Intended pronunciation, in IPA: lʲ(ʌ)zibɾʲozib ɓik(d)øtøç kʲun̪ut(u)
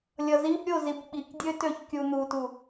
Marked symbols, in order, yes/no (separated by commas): yes, no, yes